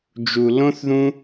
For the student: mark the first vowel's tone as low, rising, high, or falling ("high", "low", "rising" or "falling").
low